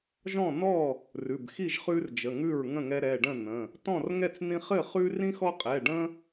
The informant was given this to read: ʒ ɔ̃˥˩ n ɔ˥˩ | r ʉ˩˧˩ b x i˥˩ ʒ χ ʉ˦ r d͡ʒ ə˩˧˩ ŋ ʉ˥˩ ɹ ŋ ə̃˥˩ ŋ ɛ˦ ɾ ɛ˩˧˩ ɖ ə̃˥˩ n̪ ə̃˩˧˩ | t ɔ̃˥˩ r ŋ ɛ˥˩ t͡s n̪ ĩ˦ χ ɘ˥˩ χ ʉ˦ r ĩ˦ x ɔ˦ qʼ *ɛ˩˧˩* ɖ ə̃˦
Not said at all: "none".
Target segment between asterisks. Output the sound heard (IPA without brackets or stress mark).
ɛ˩˧˩